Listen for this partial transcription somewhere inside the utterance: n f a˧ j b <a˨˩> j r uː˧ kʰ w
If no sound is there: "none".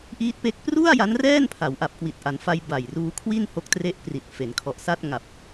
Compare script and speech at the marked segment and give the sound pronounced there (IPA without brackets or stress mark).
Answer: a˨˩